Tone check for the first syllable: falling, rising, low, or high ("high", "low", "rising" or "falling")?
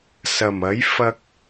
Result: low